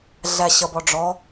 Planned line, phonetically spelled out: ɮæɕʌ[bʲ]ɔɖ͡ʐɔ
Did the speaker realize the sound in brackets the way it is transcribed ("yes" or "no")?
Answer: no